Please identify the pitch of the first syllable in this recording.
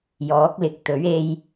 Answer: rising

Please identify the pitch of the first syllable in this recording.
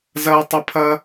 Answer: high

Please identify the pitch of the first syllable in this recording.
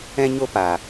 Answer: high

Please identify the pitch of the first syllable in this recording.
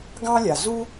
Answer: high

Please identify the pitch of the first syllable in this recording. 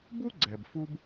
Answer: high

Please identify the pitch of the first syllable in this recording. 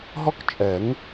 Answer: high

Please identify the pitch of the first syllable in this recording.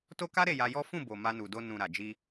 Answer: high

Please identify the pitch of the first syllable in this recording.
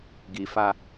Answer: low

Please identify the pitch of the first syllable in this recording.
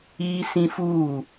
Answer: high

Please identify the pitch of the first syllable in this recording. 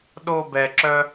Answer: high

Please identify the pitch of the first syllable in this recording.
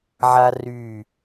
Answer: high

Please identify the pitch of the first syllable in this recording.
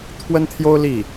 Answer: high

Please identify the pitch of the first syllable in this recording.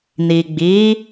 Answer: low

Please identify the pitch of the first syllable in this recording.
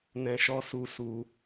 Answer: low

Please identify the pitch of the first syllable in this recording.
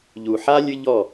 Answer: low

